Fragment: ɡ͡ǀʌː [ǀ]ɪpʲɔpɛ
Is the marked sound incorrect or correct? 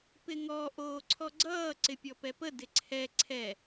correct